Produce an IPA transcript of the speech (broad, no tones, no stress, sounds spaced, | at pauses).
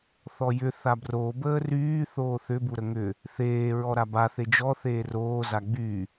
θ ɔ j ʏ θ a b r o b əː r yː θ oː θ ʏ b u ɾ ə ŋ ʏ | θ eː ɹ ɔ ɾ a b a θ e d͡ʒ ɔ θ eː r oː z a ɡ͡b y